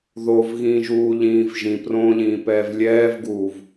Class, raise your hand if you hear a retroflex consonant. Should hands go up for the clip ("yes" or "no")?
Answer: no